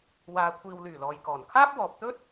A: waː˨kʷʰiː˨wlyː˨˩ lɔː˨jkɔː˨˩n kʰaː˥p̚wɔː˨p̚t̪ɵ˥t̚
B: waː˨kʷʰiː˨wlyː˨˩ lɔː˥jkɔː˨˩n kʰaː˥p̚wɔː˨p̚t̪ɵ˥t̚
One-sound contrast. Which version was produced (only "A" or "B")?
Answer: A